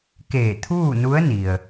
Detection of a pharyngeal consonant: absent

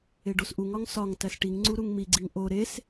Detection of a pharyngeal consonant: absent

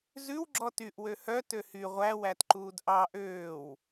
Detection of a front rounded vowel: present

